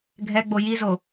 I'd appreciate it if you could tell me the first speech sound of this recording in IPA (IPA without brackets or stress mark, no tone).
ɡʱ